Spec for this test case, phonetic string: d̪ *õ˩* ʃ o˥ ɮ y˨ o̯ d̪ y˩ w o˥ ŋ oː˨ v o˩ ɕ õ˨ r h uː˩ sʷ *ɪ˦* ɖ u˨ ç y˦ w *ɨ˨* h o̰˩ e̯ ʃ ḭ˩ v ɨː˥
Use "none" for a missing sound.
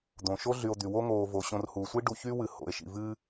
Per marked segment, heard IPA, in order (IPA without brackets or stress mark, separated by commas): õ˩, i˦, ɨ˨